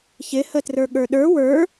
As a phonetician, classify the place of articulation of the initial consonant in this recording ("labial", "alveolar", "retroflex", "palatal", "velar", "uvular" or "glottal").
palatal